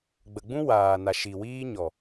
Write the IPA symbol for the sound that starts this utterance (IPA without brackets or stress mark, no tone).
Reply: ɡ͡b